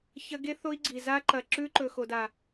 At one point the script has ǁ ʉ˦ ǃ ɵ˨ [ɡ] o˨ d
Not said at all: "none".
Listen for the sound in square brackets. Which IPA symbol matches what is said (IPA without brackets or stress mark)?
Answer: x